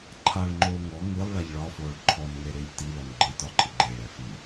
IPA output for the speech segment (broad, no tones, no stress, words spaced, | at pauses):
ǃʰaɭŋ͡ǃoː ŋɔ ŋɨlˠɭaʎ ɭɒfoːɭ ǃʰɔnŋe ɾɪːʎtilɔn ɡ͡ǃɪtɒ ǃʰɪɡ͡ǃɪːɭɛ fi